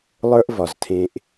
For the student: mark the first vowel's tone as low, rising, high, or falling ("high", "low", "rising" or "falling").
high